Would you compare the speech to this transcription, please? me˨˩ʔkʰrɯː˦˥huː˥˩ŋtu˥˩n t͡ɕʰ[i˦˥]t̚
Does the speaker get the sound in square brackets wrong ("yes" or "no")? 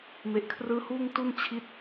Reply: no